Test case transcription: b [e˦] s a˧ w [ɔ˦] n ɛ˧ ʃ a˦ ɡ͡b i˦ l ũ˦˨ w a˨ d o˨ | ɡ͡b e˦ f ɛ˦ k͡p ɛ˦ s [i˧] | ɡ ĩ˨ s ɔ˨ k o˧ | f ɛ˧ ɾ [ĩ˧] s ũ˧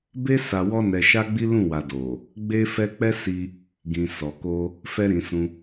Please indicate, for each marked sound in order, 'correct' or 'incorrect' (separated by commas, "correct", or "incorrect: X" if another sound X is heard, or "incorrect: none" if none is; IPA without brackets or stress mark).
correct, correct, correct, incorrect: ĩ˨